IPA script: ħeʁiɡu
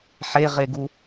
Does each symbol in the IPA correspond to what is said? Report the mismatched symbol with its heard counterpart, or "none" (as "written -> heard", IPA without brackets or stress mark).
i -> e